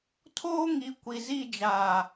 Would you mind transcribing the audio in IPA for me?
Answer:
tʰoː˦ŋi˨˦ kʷi˨zi˦˨d͡ʒaː˨

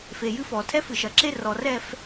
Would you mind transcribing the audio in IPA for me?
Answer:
fe˨jɨ˦fɔ˨ tʰɛ˦fɨ˨ʃɐ˨ǁe˦ rɔ˨rɛ˦˨f

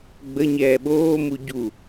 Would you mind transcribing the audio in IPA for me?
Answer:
ɡ͡bə ɲɛːɓoːmu ɟu

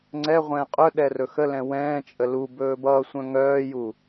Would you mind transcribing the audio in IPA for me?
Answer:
ŋ͡ǀɛʁʷɛ̃ː qʼœɗɛ rɵxəlɛ̃ wɛ̃ːt͡ʃʼə lubɵː bʌːsʷœ̃ ŋœːju

